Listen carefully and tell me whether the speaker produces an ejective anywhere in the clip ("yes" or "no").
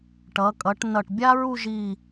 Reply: yes